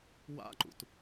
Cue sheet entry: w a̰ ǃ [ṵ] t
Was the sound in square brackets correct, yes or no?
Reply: yes